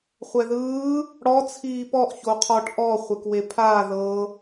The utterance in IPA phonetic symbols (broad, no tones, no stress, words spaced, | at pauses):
χʷɛðɯː | ɽɔ t͡sʰiːpɔʔ çoqʰɔʈ ʔɔ χʷekwepʰaː ðɤ